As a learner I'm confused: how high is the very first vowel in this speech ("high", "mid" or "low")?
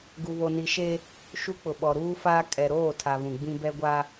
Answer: high